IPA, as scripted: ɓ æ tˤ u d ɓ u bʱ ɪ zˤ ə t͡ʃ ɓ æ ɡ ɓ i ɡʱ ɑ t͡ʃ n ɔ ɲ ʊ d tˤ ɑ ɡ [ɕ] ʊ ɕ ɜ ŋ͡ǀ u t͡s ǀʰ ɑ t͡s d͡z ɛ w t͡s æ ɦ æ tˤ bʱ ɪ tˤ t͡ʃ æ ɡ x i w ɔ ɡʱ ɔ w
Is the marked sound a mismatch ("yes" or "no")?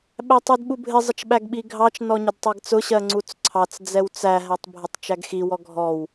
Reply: yes